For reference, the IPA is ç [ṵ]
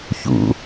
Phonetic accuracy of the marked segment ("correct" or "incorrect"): correct